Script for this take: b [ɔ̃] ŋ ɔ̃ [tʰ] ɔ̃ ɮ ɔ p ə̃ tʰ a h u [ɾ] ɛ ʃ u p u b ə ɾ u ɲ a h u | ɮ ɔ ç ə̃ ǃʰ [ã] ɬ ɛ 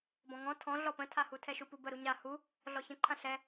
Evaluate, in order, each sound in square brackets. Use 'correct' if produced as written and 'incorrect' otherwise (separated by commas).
correct, correct, incorrect, correct